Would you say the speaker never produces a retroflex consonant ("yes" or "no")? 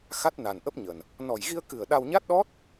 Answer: yes